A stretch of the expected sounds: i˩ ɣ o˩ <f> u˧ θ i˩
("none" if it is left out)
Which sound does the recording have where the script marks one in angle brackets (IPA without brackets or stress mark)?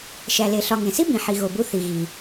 b